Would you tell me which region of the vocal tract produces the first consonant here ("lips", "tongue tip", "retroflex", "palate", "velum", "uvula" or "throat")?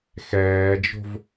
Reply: velum